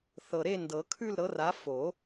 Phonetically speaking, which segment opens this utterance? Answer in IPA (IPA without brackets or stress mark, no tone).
θ